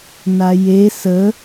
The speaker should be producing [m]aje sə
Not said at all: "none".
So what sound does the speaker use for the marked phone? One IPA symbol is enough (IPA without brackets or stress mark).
n